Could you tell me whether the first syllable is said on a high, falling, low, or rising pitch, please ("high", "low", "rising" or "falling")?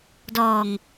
low